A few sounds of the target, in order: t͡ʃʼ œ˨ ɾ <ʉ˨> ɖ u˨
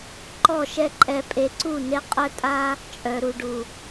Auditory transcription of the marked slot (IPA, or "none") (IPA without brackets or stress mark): u˨